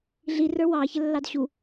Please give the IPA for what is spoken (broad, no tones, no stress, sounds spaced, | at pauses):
ɮ i r ə˞ w ɑ ç ə lː ɑ d ɕ u